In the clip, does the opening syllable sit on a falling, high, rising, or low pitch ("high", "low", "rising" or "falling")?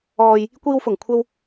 low